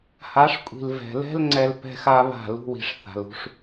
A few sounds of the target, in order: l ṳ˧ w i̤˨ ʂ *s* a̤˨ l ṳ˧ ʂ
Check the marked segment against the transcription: incorrect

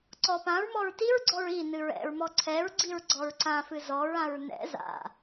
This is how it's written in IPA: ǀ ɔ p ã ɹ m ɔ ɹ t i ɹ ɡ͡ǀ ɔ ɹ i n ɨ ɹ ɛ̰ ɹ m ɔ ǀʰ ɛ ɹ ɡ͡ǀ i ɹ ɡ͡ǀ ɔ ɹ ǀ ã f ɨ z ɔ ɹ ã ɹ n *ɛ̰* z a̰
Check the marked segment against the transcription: correct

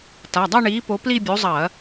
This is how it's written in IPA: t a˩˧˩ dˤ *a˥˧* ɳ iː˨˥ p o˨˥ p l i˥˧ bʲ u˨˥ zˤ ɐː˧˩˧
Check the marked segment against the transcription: correct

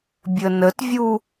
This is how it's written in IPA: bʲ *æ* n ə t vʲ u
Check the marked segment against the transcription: incorrect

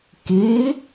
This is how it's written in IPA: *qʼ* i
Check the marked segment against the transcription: incorrect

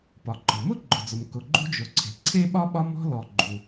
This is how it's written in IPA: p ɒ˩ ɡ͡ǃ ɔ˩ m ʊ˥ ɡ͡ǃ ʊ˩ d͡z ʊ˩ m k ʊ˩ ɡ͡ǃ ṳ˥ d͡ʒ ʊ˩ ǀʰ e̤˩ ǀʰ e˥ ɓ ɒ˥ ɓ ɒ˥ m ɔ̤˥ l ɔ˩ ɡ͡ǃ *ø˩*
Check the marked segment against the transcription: incorrect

